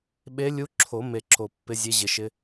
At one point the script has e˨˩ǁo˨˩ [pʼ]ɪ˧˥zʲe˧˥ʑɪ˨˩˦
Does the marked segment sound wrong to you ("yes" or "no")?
yes